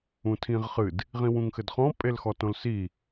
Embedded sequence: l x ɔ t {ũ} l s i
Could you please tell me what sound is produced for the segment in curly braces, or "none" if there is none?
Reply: õ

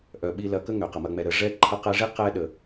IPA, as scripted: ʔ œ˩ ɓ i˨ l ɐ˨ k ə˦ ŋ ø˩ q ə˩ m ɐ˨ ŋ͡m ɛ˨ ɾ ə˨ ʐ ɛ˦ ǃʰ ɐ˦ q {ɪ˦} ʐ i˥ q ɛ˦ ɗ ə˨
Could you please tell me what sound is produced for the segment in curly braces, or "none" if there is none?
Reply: ɛ˦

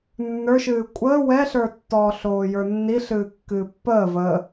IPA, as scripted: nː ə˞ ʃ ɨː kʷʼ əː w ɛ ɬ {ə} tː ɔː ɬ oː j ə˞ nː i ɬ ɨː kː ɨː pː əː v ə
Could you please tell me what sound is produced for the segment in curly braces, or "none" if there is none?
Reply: ə˞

